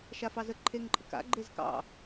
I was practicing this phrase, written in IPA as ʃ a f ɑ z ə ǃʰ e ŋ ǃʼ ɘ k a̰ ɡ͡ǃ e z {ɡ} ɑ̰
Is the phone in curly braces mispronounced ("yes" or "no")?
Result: yes